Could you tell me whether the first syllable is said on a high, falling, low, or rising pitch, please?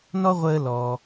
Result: high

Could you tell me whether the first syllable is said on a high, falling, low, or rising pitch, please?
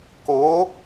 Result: rising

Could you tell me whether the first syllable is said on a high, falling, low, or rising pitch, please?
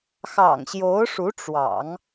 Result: low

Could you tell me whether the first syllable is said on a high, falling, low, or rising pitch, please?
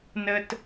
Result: high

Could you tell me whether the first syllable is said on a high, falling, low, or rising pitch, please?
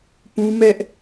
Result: high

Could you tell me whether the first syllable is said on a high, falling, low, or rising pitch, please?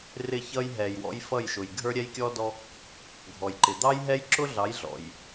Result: falling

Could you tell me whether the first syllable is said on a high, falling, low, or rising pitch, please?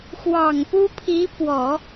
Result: low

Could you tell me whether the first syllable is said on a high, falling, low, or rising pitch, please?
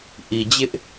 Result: low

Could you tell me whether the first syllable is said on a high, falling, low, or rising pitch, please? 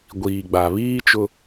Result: low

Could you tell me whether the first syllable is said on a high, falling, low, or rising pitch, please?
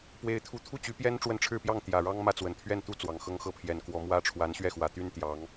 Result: high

